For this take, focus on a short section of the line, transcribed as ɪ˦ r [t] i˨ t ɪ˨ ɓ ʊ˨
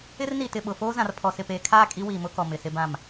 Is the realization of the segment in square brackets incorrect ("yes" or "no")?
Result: yes